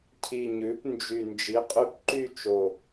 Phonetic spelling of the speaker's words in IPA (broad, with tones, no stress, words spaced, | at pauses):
cʰi˨˩ɲʉ˩˧p nd͡ʒy˨˩ nd͡ʒi˨˥qʼy˦p ǃy˥˨ t͡ʃo˨˩